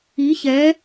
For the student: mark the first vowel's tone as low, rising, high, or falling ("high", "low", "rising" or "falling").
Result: rising